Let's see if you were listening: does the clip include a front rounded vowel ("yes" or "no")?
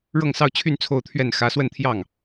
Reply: yes